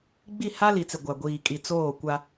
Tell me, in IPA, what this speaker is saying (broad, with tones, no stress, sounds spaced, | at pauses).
ɡ͡b i˦˨ h a˦ l i˨ t͡s ɪ˨ ɡʷ a˨ ɡʷ iː˨ kʼ i˨ t͡s oː˦˨ kʷ a˦